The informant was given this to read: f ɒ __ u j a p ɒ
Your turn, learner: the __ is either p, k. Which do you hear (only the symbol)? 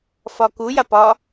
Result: k